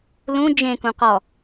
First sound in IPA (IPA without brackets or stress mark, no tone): l